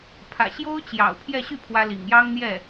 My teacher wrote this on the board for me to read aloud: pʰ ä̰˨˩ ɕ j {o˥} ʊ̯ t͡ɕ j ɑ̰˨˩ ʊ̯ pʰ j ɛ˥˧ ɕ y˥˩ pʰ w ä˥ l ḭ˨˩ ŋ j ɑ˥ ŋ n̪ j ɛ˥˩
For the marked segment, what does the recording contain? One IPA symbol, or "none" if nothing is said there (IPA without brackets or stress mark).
o˥